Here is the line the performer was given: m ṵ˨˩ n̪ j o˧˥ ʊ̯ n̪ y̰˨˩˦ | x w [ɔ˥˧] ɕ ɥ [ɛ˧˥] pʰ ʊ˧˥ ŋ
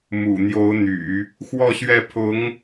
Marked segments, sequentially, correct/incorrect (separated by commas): correct, incorrect